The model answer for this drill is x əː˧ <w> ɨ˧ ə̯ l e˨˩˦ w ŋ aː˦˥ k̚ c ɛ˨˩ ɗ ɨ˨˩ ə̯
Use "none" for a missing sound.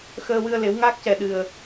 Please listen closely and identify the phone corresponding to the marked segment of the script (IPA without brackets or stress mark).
w